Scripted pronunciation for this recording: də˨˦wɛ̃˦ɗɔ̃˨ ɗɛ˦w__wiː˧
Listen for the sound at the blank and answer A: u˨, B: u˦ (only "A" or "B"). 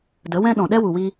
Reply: A